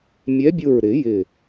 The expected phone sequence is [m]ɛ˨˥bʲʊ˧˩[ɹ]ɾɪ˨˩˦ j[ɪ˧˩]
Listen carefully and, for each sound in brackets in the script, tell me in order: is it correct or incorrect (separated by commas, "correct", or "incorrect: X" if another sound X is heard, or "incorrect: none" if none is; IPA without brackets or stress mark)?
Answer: incorrect: mʲ, correct, correct